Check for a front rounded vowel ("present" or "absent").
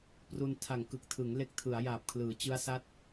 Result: absent